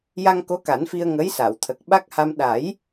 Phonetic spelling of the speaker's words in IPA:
ja˧ŋko˧˥ ka˨˩˦nfi˧ə̯ ŋə˧˥jsa˨˩˨w t̪ʰə˨˩k̚ ɓa˦˥k̚ha˧m ɗa˨˩˦j

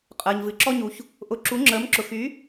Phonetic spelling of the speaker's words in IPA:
qʼəː˩ɲvɨ˩ǁɔ˧ɲu˩ç | ʔʊ˩˥ǁu˩˥ŋ͡ǁəː˩˥m ǁʊ˩xy˩˥

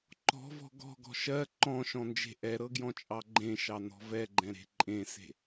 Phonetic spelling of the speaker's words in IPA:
ǃɔ̤vɔ̤ ɡɔ̤ɡɔ̤ ʃɜ ǃɔ̃ʃɔ̃nd͡ʒe̤ ʔɛɾɤɡjɔ̃t͡ʃʼɑ ɡ͡ǃẽʃɑnɔ̤ vɛɡ͡ǃɛ̃ɾe̤ ǃʼẽse̤

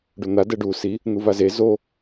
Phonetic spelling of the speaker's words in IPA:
ɖon̪a dɛɖu si | n̪uvaze zo

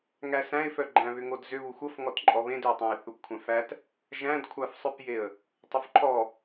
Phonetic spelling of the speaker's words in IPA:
ŋæsæ̃ɪ̯fœ ɡ͡ǃæ̃βʏŋodzʏ βuxʷəfŋɔtǃʼɔ βẽdʏʊ̯tˤæ̃ɪ̯ θupkʷʰæ̃fæt | ʒæ̃dkʷʰafsˤœpjeə̯ | tˤʏfǃʰɔ

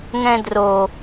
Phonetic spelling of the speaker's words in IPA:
ŋɛ̃dro

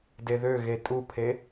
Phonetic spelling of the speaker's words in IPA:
deðøɣe tʼupʰe

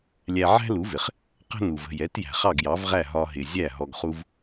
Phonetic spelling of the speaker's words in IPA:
lʲæ˧ ʕæ̤˥lu˩˥vɪ˩χ | qə̤˥ nu˩və̤˥˩jɛ˩˥t jæ̤˩χɑ˥˩ɡjɑ˩˥vʁæ˥˩ ɦɒ˧ɦɪ˩ zʲæ˥˩ ɦɔ˧ɡχu˥v

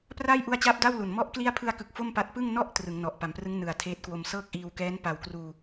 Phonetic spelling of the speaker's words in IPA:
praː˥˩jʔu˦˥a̯t͡ɕaː˦˥p̚ da˥˩wlu˨˩n mɔ˦˥ʔ kli˦˥a̯pʰɯ˧a̯kɯ˨˩k̚ fo˥˩mpa˦˥t̚ pɯ˥˩ŋ nɔ˦˥ʔ trɯ˩˦ŋnɔ˨˩ʔ pa˩˦mprɯ˦˥ŋ nɯ˨˩a̯tʰeː˦˥t̚kwo˧m sɤː˥˩k̚ʔiː˧wkɛː˦˥n pa˨˩w kruː˧

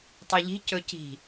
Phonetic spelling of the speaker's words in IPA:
tˤiʎi̤ cɵci̤

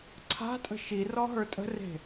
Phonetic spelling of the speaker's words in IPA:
ǀʰa̤tʼə̤ ʃirɔ ɦə˞tʼə̤re̤

